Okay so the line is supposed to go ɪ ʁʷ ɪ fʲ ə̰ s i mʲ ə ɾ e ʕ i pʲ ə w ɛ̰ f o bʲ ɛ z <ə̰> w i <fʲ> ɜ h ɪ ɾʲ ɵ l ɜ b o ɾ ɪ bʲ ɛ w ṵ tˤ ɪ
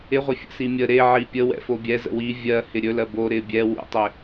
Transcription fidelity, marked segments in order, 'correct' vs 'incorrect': correct, incorrect: vʲ

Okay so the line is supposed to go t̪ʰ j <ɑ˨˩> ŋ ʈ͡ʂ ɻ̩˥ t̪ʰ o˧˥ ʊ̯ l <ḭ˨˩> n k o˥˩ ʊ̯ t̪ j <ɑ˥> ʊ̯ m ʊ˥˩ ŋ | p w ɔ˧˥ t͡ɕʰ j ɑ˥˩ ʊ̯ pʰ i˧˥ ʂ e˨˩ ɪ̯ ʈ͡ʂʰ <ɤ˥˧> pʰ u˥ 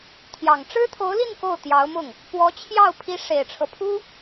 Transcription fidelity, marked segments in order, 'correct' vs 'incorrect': correct, incorrect: i˥˧, incorrect: ɑ˧˥, incorrect: ɤ˦

